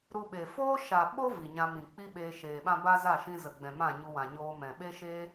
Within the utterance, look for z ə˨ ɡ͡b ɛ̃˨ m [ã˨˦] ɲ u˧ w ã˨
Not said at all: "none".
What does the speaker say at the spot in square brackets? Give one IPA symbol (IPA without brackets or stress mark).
ã˦˨